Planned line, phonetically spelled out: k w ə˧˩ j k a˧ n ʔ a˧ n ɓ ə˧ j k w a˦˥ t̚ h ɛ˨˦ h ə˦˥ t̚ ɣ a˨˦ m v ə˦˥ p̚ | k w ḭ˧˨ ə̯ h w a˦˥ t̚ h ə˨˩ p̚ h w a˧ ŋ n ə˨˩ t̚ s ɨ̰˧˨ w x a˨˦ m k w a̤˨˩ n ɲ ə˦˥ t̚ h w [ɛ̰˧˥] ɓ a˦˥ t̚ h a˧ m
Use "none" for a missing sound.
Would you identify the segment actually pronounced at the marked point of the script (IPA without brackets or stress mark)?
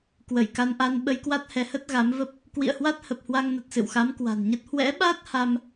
ɛ̰˧˥